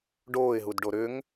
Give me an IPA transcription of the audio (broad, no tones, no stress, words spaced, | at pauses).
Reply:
ɖoːɪ̯ɦudɖo ɾʏŋ